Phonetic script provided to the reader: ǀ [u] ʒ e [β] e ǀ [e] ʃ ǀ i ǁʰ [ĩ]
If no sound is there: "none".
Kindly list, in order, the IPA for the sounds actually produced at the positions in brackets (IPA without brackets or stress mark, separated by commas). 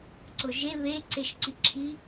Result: ʊ, β, e, i